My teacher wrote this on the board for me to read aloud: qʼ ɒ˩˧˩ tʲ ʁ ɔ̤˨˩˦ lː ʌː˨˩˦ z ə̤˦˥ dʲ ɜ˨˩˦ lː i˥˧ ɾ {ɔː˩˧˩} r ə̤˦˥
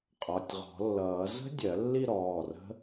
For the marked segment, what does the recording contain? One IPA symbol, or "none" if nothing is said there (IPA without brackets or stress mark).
ɔː˩˧˩